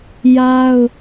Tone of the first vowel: high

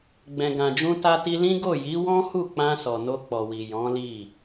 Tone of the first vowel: low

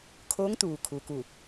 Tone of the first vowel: rising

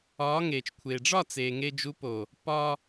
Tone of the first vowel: rising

